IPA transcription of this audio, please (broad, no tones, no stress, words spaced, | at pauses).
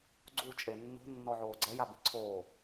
ɡ͡ǀu t͡ʃʼenːo̤ nːɔʕoːɡ͡ǀɛj abiǀʰoː